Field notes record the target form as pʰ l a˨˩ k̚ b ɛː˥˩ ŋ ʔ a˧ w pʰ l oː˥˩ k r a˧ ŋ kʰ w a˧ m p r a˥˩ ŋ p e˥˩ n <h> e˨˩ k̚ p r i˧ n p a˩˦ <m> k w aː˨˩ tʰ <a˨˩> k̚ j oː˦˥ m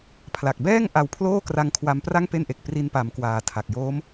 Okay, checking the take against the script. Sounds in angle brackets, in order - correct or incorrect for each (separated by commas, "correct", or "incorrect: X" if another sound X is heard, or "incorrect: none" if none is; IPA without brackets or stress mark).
incorrect: ʔ, correct, correct